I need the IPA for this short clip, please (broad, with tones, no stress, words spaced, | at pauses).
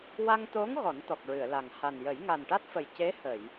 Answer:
wa˧ŋt̪o˧˥ŋ ɣɔ˨˩˦nt̪ɔ˨˩k̚ɹɨ˨˩˨ə̯la˨˩ŋ ha˨˩njə˨˩˦j ŋa˨˩nʈa˦˥t̚fə˨˩j ce˧˥hə˨˩˨j